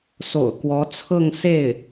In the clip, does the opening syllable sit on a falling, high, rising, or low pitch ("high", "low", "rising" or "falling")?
low